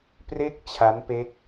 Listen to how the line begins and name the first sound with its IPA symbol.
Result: p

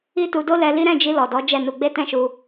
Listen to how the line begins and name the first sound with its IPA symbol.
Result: i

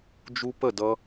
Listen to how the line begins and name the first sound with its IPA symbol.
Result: d͡ʒ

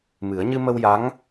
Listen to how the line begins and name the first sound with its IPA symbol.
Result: m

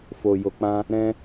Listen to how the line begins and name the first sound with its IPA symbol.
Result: f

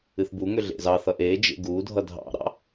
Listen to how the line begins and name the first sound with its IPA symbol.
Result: ɨ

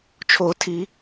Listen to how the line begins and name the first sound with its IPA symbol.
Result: t͡ʃʰ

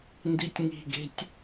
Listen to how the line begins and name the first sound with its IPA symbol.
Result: n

